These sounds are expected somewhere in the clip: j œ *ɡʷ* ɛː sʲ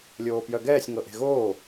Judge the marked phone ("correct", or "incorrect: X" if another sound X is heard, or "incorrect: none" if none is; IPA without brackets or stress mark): incorrect: ɡ